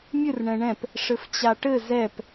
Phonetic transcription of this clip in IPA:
mʲ ɨ r ɳ ɛ̃ ɳ ɛ̃ p | ʂ ɘ f t͡ɕ a ʈ ɘ z ɛ p

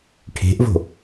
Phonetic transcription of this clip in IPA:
ʈʰ e̤ ʔ v o̤

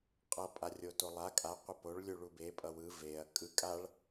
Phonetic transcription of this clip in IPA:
qʼ ʌ pʼ a rʲ o t o lˠ a kʼ a qʷ e p o ɭ lʲ u ɭ u b e pʼ ʌ w ɯ v e ɐ̯ kʼ ɯ kʼ a ɭ

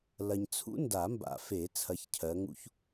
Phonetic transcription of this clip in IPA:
l ɐ˨ ɲ t͡sʰ ṵ˦˥ n d a˨˩˦ m b a̰˨˩˦ f e˨˩˦ t͡sʰ ɐ˨˦ ç cʰ ɜ˨˦ ŋ ṵ˦˥ ç

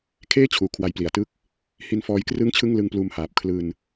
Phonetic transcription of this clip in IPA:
kʰ eː˥˩ t͡ɕʰ uː˨˩ kʰ w a˦˥ j p l i˩˦ a̯ t ɯ˦˥ k̚ | h i˧ n f ɔː˦˥ j k r ɯ˥˩ ŋ t͡ɕʰ ɯ˥˩ ŋ l ɯ˧ ŋ p l uː˧ m h aː˨˩ p̚ kʰ l ɯː˧ n

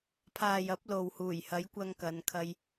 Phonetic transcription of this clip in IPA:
pʰ aː˨ j ɐ˨˥ p̚ l o˨ w h uː˨˩ j h ɐ˨˥ j kʷ ɐ˧ ŋ k ɐ˨˧ n kʰ ɐ˧ j

